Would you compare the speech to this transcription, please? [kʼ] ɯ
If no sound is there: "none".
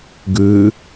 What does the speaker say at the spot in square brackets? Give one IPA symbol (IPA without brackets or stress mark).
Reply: ɡ